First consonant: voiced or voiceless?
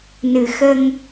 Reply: voiced